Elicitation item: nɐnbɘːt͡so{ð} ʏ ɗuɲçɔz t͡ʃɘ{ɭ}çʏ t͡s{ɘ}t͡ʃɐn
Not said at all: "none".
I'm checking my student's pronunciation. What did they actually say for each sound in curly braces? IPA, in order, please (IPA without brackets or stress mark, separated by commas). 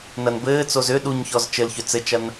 z, l, ɘ